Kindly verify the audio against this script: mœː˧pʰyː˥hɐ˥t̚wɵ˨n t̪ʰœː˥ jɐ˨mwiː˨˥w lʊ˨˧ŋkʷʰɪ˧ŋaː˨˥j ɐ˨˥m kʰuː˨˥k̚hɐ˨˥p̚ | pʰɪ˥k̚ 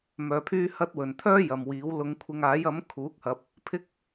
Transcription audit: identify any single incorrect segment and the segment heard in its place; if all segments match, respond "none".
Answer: none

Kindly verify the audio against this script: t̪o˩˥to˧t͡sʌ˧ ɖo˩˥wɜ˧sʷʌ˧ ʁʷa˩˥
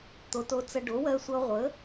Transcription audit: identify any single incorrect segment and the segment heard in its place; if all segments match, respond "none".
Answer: a˩˥ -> ə˩˥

